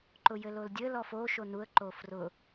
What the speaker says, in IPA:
ǃ ʊ j ɘ l o l dʲ ɘ l ɔ f o ʃ o n u ə̯ ǃ o f r ʊ

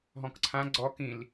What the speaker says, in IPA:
ɦ ɔ̃ k ǀʰ ã ɡ͡ǀ ɔ k ĩ l

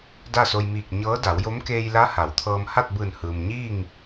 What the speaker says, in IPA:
d a˥˨ s o˧ j m iː˧˩ k̚ ɲ ɤː˧˥ d a˩˧ w j o˧˥ m k eː˧ j l a˧˥ h a˩˧ w t̪ʰ ɤː˧ m h a˥˨ t̚ b ɯː˧˩ n h ɯː˩ m ɲ iː˥˨ ŋ

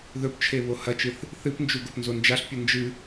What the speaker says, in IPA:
ð ɵ p t͡ʃʰ e β o h ɐ t͡ʃ ɨ θ | θ ɨ p n d͡ʒ u ɡ o p n z o n d͡ʒ a ɬ pʲ u n d͡ʒ ɨ

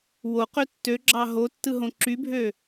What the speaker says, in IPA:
w o q ø tː ø ɡ͡ǁ ɑ ɦ o tː ɯ ɦ õ ǁ y bʱ ø

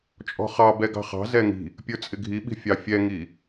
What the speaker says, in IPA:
t͡ʃʼ ɔ̤ χ ɑ b ɛ ɡ ɑ̤ χ ɑ̤ z ɛ ŋ i̤ | pʲ ə˞ t͡sʼ ɪ ɡʱ i ɓ i̤ fʲ ɑ fʲ ɛ ŋ i

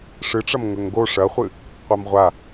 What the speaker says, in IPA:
ʂ ɨ ʈ͡ʂ ɐ m ŋ ɵ ŋ ɡ o ʂ ɐ χʷ ɨ | qʷ a m ʁʷ a

